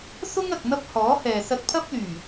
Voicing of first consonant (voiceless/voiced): voiceless